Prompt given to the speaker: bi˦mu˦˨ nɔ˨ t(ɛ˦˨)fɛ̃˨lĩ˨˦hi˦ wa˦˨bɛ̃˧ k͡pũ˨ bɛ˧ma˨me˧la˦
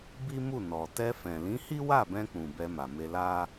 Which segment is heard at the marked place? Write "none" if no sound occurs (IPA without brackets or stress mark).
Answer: ɛ˧